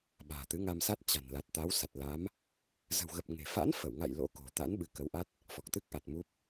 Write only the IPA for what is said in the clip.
ɓa̤ː˨˩t̪ɨ˨˦ŋa˧msa˦˥t̚ t͡ɕa̤˨˩n la˨˩t̚t̪a˨˦wsa˨˩t̚la˨˦m | zə̤˨˩wɣə˨˩p̚ ŋe̤˨˩ fa̰˧˥nfə˧˩wŋa̰˧˨j lo̰˧˥ko̤˨˩t̪a̰˧˥n ɓɨ˧kə˨˦wʔa˦˥t̚ | fɔ˨˩k̚t̪ɨ˦˥k̚ʔa˨˩t̚ mu˦˥p̚

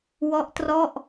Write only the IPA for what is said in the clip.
wɔ˦˥ʔtrɔ˥˩ʔ

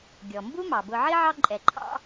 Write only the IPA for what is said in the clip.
ɡʲɔ˩mbu˥mɑ˩ bʊ˨ʕi˥ʕɑ˦ǃʼɛ˩ ǃʰɑ̰˥

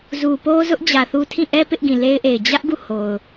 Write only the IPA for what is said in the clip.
zu˨po˦zʊ˦ʔ d͡ʑä˨θu˦ tʰĩ˦˨ʔɛ˦ pɪ˦ʔɡĩ˨le˦ɪ̯ʔe˨ɪ̯ d͡ʑä˦ʔ ɡu˦˨ho˨ʊ̯

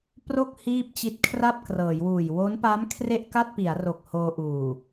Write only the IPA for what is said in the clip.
pro˥˩k̚ hiː˥˩p̚t͡ɕi˦˥t̚ kʰra˥˩p̚krɤː˩˦jwuː˨˩j wo˦˥n pa˦˥m kʰre˥˩ʔka˥˩t̚pi˩˦a̯ro˨˩k̚ hoː˧ʔuː˨˩

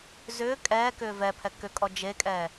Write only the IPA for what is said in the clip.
zʏː kʼɛːkʏː vɛpʰɛ kʏkʼɔ d͡ʒekʼɛː

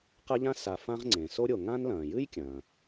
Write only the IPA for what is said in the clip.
qɐ˥ʎã˥ sa˨fã˦ʁŋ͡ǀẽ˩ so˥ɾʲo˨ ŋã˥nlɐ̃ː˩ jɨ˥jkʲɐ̃˩

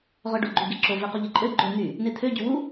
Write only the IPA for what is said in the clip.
ʁœɖoɡ͡ǃy ɡeǁo vequʎeǃʼø ɡ͡ǃø n̪y | net̪ʰø ɟywu

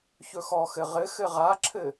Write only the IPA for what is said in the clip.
çɵxɔxɘ ʁɘxɘ ʁaǁʰɘ

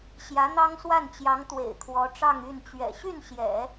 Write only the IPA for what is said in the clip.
ɕjä˧˥n̪ɑ˥ŋswa˥˩nt͡ɕjɑ˧˥ŋ t̪wḛ˨˩ɪ̯kʰwɔ˧˥ʈ͡ʂɑ˥˧ŋ y˥˩nt͡ɕɥɛ̰˨˩ ɕy˥˩nɕjɛ̰˨˩˦

